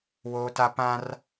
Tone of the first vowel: high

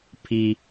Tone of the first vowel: high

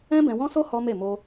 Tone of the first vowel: high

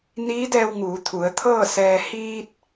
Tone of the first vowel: rising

